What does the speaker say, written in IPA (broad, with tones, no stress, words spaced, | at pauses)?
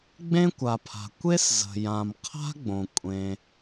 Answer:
ɡ͡bẽ˥kʷa˩pʰa̤˩ kʷe˥szə̤˩jã˩mqʰa̤˥ ɡ͡bõ˩ kʷʼẽ˩